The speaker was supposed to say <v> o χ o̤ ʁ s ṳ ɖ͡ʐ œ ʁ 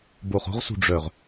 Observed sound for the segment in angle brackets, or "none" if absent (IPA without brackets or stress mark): b